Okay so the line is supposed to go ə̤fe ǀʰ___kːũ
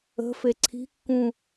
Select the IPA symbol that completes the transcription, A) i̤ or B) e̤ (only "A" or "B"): A